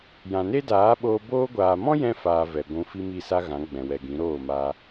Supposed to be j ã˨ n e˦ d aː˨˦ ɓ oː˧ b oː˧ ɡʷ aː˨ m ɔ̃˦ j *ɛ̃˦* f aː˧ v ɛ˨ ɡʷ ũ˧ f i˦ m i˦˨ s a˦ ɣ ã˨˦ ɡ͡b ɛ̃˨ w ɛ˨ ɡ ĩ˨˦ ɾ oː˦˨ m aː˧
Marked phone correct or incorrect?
correct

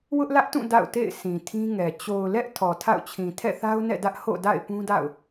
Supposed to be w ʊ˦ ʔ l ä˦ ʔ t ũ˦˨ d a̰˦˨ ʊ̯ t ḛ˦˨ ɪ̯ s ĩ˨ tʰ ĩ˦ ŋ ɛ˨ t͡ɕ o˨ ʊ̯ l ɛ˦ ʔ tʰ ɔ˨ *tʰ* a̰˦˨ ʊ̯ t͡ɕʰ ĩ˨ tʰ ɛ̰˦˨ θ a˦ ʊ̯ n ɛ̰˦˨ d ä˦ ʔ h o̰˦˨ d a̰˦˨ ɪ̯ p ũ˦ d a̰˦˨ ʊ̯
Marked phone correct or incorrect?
correct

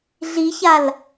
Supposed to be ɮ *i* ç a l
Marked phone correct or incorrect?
correct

